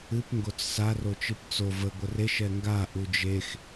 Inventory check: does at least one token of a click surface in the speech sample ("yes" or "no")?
no